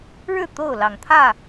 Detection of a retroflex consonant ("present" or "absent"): present